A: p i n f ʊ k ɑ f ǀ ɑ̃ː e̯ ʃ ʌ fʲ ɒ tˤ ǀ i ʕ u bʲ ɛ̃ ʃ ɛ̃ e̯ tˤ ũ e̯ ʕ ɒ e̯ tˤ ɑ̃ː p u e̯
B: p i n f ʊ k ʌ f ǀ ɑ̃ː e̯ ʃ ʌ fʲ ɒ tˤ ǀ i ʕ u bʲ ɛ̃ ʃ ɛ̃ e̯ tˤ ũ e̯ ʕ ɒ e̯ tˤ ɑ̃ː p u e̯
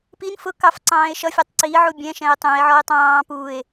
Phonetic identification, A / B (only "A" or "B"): A